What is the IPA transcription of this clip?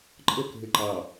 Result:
ǃʼ ə k ɦ ɪ ǃ ɑ

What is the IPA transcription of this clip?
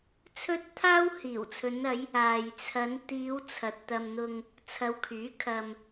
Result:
t͡sʰ ɵ˥ t̚ t̪ʰ aː˥ w h iː˨˩ w t͡sʰ ɵ˨˧ n ɐ˨˧ j | aː˨ j t͡sʰ ɐ˨˧ n t̪ iː˨˧ w t͡sʰ ɐ˨ t̚ t̪ ɐ˧ m n̪ ʊ˧ ŋ | t͡sʰ ɐ˨˧ w kʰ yː˨˥ kʰ ɐ˧ m

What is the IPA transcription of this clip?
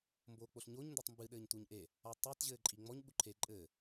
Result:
m b oː k͡p o ɬ ɲ o ɲ n d o tˤ m b ɨ ɗ ɘː ɲ t u ɲ ʔ e | a tˤ ɛ t ʑ ɘː ǃʼ i ŋ͡m ɔ ɲ ɓ u ǃʰ e ǃʼ ɘː

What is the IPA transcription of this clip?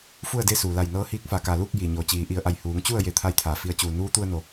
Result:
f u˥˨ ə̯ d e˥˨ s uː˩ l a˧˩ j n ɤː˧ h iː˧ k̚ f a˩˧ k a˩ l uː˥˨ k̚ j i˩ ɲ o˧˩ t͡ɕ iː˩˧ ʔ i˩˧ ə̯ ʔ a˧˩ j h uː˩˧ ŋ t͡ɕ u˥˨ ə̯ j e˧˩ t̪ʰ a˧ j t̪ʰ aː˩ f i˩˧ ə̯ t͡ɕ uː˩ n uː˧˥ t̪ u˧ ə̯ n o˩

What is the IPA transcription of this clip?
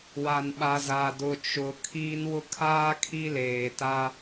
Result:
w a˨ n ɓ a˨ z a˨ d ʊ˨ t͡ʃ ʊ˨ kʰ i˦ n w ʊ˦ kʰ aː˦ kʰ i˦ l eː˨ t a˦

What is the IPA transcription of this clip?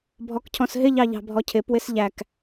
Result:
bʱ ɔ k cʰ ɔ̃ s ɦ ɪ ʎ ɑ ʎ ɑ̤ bʱ ɔ cʰ ɪ p w ɪ s ʎ æ k

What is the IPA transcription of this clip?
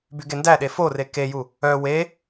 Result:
b y ɡ e n d æ ɗ e f o r e k e j u | œ w e

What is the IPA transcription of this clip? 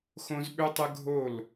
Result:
x õ˦ z ɓ ʏ˦ tˤ ə˦ ɡʱ o˦˨ l

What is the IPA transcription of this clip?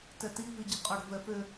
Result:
t ɛ t i v i ɟ ə̤ qʼ ʌ ɽ ə̤ v ɛ f ʏ

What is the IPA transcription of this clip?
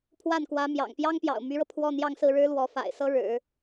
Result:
pʰ w a˥˩ n k w ä˧˥ m j ɑ̰˨˩ ŋ p j ɑ˥ ŋ p j ɑ̰˨˩ ʊ̯ m y˧˥ ɻ ɤ˧ pʰ w ɔ˥˧ n̪ j ɑ˥˧ ŋ s ɹ̩˥˩ ɻ ɻ̩˥ l w ɔ˧˥ f a̰˨˩ ɪ̯ s ɤ˥ ɻ ɻ̩˨˩˦

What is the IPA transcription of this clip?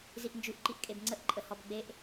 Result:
z i ʔ n d͡ʒ ʉ ʔ ǃ i ʔ kʼ e b ŋ͡ǀ ə ʔ ǃʼ ə h ɔ b ɡ͡b e ʔ

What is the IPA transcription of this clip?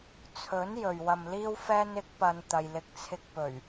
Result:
t͡sʰ ɵ˨˥ n j ɵ˨ ɥ w ɐ˧ m l iː˥ w f ɛː˥ n ɪ˨˥ k̚ p ɐ˧ n t̪ ɐ˨ j l ɪ˨˥ k̚ t͡sʰ ɪ˧ k̚ p ɵ˨˩ ɥ

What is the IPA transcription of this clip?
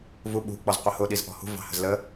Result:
v u ɓ ṳ k͡p ɔ z qʷ ə h ʊ ɗ i z ʔ ɔ̤ h ṳ v ɑ̤ h ə̤ z l ə

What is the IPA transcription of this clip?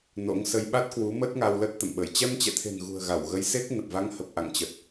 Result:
n o̰˧˥ ŋ s ə˧ j ɓ a˦˥ t̚ k w u˨˦ m ə˦˥ t̚ ŋ a˧ w l ə˦˥ t̚ t̪ ə̰˧˨ m ɓ ə˧˩ j t͡ɕ ɛ˧ m t͡ɕ ɛ̰˧˨ t̪ʰ e̤˨˩ n ɣ ṳ˨˩ ə̯ ɣ a˧˩ w ɣ ə˨˦ j s e˦˥ k̚ n ə˨˩ p̚ v a˨˦ ŋ h ə˨˩ p̚ ʔ a̰˧˨ ŋ t͡ɕ ə˨˩ t̚

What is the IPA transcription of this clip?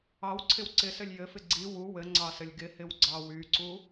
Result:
ɑ w ǀʰ ɪ w ǀ ɪ s ɘ lʲ j ɘ f ɪ ɡ͡ǀ i w u w ɘ ŋ͡ǀ ɑ s ɘ lʲ ɡ ɪ h ɪ w ɡ͡ǀ ɑ w y ǀ u

